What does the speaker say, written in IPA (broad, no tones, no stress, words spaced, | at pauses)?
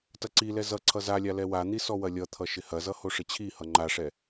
tɐǀilɛ zʌ ǀʰʌzalʲa lɛwan̪i sɔwɐlʲʌt̪ʰʌ ʃɪhɐzʌ hoʂɪt͡ɕʰihʌ ŋ͡ǃaʂɛ